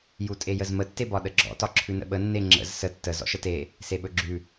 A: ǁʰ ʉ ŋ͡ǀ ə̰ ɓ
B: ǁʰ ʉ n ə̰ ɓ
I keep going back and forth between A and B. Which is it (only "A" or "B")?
B